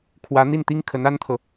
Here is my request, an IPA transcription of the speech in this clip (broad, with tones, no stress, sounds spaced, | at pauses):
kʰ w ä˧˥ n̪ i˥˩ n t̪ i˥ ŋ kʰ ə˧˥ n a˥ n t̪ʰ ɤ˨